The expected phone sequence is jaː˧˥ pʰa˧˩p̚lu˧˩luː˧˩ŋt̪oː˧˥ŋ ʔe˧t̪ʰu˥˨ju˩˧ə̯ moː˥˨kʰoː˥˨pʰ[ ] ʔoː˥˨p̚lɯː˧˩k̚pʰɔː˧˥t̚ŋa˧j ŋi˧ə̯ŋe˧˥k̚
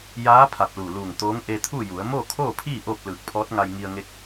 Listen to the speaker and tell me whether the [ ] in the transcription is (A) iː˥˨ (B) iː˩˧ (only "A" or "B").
A